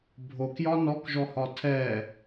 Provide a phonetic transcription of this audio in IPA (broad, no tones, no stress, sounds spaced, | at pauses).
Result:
bʱ o k j ɒ n ɔ k ʒ ɔ h ɒ tʰ ɛ